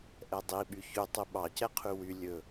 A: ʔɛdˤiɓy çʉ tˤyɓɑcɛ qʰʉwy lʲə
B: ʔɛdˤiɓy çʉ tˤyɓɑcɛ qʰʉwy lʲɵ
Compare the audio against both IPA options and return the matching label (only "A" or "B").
B